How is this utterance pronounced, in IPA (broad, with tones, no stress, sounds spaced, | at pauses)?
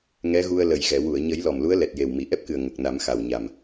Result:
ŋ ɛ˧˥ ɣ u˧ ə̯ l ə˨˩ j ɣ ɛ˨˩˨ w u˨˩˨ ə̯ ɲ ə˨˩˦ j l ɔ˨˩ m l u˧˥ ə̯ l ɛ˨˩ t̚ j e˨˩ w m i˨˩˨ ʔ ɛ˦˥ p̚ k ɨ˨˩ ə̯ ŋ ə˨˩ k̚ n a˨˩˦ m x a˨˩ w ɲ a˨˩ m